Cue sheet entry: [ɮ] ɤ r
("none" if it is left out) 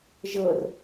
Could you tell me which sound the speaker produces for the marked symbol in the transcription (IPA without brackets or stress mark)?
ʒ